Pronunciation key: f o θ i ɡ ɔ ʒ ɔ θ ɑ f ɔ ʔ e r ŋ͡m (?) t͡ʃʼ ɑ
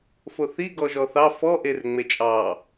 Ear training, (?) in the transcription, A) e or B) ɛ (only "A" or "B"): A